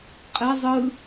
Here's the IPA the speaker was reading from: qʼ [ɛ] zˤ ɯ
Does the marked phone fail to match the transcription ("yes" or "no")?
no